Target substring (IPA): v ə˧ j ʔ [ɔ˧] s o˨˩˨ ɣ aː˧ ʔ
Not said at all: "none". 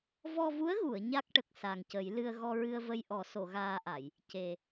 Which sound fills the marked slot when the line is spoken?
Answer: ɔ˨˩˦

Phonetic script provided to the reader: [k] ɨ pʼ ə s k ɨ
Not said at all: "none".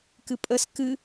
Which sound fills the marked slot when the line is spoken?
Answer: k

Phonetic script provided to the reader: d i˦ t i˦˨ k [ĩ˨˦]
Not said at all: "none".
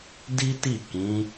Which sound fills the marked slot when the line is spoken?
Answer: ĩ˨˦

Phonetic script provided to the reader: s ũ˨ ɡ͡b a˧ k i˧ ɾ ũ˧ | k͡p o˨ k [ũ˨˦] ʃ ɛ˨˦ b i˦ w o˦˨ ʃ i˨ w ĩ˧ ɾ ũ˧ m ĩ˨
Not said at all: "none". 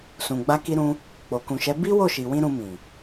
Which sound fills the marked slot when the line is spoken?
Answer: ũ˨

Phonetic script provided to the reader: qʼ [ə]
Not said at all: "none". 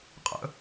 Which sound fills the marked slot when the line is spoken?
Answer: ə̰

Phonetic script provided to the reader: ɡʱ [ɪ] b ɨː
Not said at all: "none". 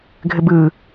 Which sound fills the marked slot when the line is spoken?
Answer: ɪ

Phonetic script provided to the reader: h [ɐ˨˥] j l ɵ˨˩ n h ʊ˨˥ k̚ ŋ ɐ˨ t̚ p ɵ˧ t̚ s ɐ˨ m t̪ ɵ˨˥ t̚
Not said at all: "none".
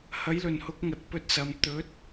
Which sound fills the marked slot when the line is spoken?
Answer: ɐ˨˥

